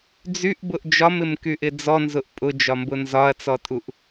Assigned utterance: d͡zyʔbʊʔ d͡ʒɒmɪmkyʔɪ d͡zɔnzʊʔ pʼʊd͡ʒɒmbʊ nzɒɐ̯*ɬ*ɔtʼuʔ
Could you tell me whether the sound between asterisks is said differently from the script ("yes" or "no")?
yes